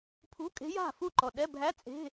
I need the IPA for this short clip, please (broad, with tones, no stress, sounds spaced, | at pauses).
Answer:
pʰ ṳ˧˥˧ kʼ e̤˧˥ j a̤˥˩ f u˥˩ ǃ ɔ˨˩ ɗ ɛ˧˥˧ bʱ æ˧˥˧ t͡sʼ e̤˧˥˧